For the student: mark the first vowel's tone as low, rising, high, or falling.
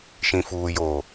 low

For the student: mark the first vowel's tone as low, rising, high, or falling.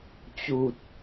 low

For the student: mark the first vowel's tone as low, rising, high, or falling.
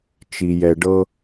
low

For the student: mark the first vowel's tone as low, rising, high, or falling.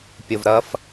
low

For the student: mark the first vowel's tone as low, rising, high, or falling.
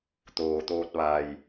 low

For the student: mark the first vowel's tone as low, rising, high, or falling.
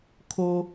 high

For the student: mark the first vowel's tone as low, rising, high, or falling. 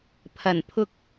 low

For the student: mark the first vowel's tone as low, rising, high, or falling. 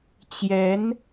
rising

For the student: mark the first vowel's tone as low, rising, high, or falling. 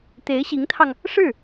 rising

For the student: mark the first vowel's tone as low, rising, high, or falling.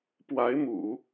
rising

